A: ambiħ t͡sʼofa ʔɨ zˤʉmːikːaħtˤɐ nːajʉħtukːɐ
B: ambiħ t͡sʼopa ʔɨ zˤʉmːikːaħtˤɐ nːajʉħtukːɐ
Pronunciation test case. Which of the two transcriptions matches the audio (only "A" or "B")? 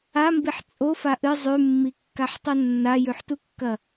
A